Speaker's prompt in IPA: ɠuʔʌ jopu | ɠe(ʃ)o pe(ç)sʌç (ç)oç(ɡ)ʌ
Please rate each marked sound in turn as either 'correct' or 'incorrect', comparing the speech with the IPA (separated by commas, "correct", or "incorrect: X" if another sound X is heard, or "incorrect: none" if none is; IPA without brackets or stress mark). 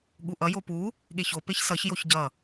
incorrect: ç, correct, incorrect: j, incorrect: ɟ